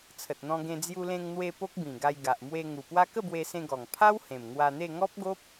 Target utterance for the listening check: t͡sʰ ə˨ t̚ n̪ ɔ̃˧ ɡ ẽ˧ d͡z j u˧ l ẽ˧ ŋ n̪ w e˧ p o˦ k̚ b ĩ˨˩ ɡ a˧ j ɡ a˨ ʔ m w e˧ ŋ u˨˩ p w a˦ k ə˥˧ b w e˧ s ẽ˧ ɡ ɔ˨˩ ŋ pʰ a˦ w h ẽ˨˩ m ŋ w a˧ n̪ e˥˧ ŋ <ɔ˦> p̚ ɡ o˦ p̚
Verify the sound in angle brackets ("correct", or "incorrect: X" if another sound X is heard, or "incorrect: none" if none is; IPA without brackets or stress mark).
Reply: correct